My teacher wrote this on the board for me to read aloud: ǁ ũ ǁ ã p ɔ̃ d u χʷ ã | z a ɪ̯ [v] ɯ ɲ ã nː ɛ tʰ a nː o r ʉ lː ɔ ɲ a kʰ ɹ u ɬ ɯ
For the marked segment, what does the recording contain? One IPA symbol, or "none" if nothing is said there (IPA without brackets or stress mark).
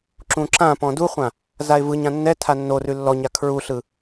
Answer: v